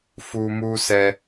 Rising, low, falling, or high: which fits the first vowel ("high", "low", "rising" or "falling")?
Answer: high